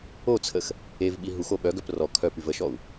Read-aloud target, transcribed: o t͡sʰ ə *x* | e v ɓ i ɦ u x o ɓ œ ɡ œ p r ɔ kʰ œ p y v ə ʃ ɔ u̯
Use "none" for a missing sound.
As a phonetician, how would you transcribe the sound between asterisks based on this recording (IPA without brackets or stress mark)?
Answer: x